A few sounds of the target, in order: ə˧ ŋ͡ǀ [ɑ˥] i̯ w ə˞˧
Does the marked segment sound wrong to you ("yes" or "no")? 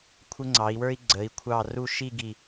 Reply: yes